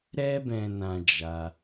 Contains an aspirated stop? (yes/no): no